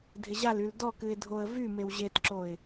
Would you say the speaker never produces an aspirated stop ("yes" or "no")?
yes